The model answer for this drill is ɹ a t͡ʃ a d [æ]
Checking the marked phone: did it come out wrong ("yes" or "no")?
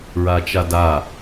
yes